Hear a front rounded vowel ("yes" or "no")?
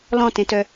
yes